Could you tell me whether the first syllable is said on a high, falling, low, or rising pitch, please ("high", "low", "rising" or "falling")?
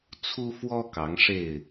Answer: high